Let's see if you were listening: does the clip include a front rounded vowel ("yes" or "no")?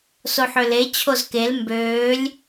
yes